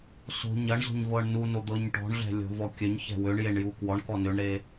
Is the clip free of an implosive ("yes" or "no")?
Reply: yes